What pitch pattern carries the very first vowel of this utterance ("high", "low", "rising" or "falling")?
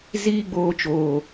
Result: high